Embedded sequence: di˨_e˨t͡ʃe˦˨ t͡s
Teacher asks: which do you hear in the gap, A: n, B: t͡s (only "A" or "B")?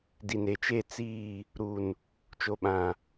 A